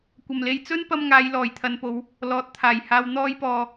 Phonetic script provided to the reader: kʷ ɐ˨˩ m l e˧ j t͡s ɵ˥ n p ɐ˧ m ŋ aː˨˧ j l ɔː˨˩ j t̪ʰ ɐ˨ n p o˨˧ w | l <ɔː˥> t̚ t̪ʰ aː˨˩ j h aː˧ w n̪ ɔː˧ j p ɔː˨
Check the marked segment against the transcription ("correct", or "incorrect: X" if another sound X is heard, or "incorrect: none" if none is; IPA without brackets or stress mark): incorrect: ɔː˨